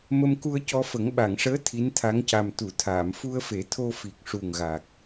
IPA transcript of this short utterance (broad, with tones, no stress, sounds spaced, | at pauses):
m ə˧ m k u˧ ə̯ c ɔ˧ f ə˨˩˦ ŋ ɓ a˨˩˨ ŋ ʂ əː˧˥ t̪ʰ i˧˥ n t̪ʰ a˧˥ ŋ c a˨˩ m t̪ u˨˩˨ t̪ʰ aː˨˩˨ m f u˧ ə̯ f e˨˩˦ t̪ʰ o˧ f i˨˩ k̚ ʂ u˨˩ ŋ ɣ a˨˩ k̚